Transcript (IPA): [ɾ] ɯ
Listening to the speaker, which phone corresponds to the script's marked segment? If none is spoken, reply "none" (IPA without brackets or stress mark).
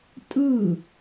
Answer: tʼ